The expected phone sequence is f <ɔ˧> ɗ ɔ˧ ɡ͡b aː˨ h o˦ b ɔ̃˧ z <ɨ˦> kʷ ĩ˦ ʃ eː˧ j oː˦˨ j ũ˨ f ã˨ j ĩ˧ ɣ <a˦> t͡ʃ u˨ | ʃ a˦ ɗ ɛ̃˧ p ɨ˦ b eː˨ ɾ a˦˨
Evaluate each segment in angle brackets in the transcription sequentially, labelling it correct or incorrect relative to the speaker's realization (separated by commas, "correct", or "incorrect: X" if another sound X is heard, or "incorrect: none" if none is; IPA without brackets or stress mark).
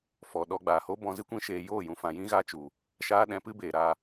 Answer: incorrect: ɔ˨, correct, incorrect: a˧